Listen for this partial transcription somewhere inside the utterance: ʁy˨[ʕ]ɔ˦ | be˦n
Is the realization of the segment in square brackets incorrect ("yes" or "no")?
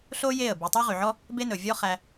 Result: no